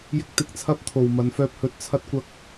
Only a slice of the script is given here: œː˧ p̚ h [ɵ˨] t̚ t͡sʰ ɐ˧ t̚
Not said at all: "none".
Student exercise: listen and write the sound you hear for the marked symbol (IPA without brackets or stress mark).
ɵ˨